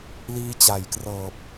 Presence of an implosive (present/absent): absent